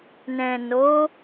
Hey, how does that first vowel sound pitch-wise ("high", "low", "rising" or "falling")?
low